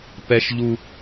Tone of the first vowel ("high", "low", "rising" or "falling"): high